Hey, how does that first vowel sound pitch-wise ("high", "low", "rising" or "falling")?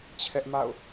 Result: high